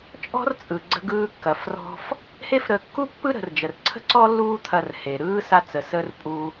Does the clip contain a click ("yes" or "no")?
yes